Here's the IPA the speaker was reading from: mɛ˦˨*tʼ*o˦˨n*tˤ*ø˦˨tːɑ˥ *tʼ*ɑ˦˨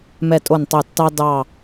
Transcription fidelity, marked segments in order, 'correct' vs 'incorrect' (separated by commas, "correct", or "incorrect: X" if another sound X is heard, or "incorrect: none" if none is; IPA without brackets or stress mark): correct, correct, incorrect: d